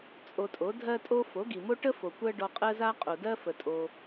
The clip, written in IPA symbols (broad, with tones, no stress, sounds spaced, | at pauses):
t͡sʼ o˧ tʼ o˩˥ dʱ ɜ˥ tʼ o˥ f o˩˥ ɡ i˩ m o˥ ʈ ə˥ f o˩ kʷ ɜ˥ ɖ ɔ˧ qʼ ɜ˥ z a˥ qʼ o˩ d ɜ˥ f ə˩ tʼ o˩